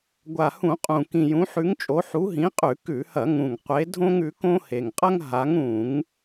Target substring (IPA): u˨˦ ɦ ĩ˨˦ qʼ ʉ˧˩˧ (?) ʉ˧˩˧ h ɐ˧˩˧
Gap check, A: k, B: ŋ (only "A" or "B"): A